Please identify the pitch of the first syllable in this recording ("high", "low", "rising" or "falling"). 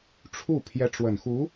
falling